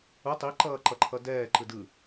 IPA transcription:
u tˤ i ǃ ʌː ǃ ʌ ǃʰ ʌ d ɛː ǃ ɯ d ɯ

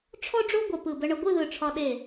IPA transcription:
ʈ͡ʂʰ ɔ˥ ɖ͡ʐ o˥ ɡʷ ə˧˩ p ɯ˧˩ b ə˧ ɳ ə˧ ɡʷ ɯ˥˧ ð ɯ˧˩ ʈ͡ʂʰ ɒ˧ ɗ e˧˩

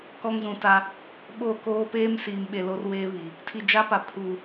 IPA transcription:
k ɔ˦ ŋ z ũ˨ t a˦ | ɓ o˦˨ k oː˦ p eː˦ m s iː˨ m ɓ e˨ l o˦ r w eː˦ β i˨ | tʰ i˨ d͡ʒ a˦ p a˨ pʰ u˨

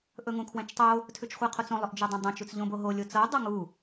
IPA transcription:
ʔ ɵ ŋ ũ kʰ w ɛ̃ t͡ʃ tˤ o | tʰ ʉ t͡ʃ χʷ ɛ qʰ o t͡s õ lˠ ɵ ʔ d͡ʒ ɤ dˤ ɛ̃ dˤ õ t͡ʃ u t͡s ʎ õ b o ɦ o lʲ o t͡s ɤ dˤ ɤ ŋ u

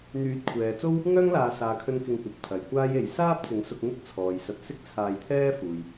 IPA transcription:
n̪ yː˨˥ t̚ kʷʰ ɛː˨ t͡s o˥ w | ŋ œː˥ ŋ l aː˨ s aː˨ kʰ ɵ˧ n k ɪ˧ ŋ kʷ ɐ˨ p̚ t̪ʰ ɐ˨ j kʷ aː˥ j e˧ j s aː˥ p̚ t͡s ɪ˨˥ ŋ s ʊ˧ k̚ ŋ ɪ˥ k̚ t͡sʰ ɔː˨ j s ɐ˧ t̚ s ɪ˥ k̚ t͡sʰ aː˧ j t̪ʰ ɛː˥ f uː˨ j

